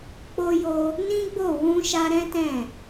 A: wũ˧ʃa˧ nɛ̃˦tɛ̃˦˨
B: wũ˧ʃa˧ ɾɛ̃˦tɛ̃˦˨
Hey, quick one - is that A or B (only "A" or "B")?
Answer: B